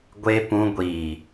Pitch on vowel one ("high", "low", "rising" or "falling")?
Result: high